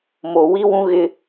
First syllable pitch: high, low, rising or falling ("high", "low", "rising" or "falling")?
low